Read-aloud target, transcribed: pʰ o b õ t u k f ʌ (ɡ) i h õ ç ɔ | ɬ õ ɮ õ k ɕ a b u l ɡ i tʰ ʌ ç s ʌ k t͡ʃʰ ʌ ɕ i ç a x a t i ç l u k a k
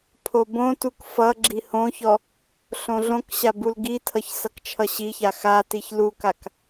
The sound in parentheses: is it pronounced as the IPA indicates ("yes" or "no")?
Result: no